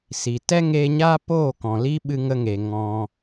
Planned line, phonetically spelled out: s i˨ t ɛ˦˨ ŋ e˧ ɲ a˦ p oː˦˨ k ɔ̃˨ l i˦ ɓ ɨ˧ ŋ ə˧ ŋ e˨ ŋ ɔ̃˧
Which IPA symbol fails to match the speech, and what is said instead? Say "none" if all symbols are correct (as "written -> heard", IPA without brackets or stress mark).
ɛ˦˨ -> ɛ˦